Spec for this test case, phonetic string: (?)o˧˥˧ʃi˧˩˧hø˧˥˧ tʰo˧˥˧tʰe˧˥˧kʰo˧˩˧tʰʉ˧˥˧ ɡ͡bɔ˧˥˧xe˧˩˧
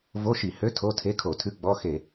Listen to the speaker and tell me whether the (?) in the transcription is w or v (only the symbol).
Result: v